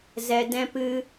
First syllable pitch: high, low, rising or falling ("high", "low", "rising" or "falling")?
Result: low